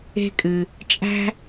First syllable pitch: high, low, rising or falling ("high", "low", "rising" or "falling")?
high